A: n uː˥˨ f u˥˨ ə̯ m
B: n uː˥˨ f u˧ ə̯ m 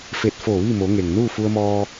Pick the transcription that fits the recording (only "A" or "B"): B